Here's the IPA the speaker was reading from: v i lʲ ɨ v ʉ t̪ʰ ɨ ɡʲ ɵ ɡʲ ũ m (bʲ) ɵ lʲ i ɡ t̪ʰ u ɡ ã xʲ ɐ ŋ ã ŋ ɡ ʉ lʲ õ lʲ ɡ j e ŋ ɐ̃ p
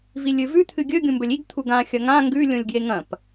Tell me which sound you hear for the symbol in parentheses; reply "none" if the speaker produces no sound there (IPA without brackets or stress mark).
b